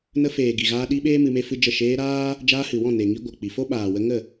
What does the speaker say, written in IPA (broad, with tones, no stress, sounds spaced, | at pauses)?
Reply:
n ə˧ f eː˨ ɡ i˨ ɣ aː˧ ɗ i˧ ɓ eː˦ m ɨ˧ m e˦ f ɨ˦ d͡ʒ ə˦˨ ʃ eː˧ ɾ aː˦ | d͡ʒ aː˧ h ɨ˨ w ɔ̃˦˨ n e˨ ŋ i˧ ɡʷ ə˨ k͡p i˨ f o˦ ɓ aː˨ w ə˧ ŋ ə˦˨